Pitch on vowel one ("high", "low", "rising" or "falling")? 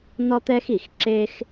high